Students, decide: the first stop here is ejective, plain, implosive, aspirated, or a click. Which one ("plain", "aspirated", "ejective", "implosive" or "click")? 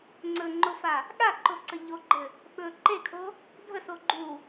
click